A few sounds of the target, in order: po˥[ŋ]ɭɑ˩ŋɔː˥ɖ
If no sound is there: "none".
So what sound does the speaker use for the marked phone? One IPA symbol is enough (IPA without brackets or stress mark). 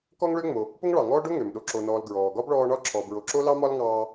ŋ